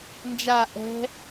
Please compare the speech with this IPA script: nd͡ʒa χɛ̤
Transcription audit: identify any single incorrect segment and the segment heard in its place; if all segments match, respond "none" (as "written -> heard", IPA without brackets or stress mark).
χ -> ʔ